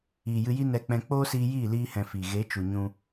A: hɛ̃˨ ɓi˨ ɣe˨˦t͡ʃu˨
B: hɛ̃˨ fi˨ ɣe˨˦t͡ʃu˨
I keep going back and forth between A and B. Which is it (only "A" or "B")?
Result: B